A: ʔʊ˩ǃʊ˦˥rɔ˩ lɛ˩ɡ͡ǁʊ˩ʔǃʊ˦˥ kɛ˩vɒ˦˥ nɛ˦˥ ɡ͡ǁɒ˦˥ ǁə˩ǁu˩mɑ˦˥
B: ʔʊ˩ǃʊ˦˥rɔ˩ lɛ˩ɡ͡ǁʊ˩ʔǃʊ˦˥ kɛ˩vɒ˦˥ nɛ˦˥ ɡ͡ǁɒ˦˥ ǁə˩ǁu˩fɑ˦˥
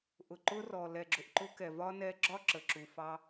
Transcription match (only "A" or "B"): B